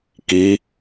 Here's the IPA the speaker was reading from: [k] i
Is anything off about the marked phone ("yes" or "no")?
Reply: no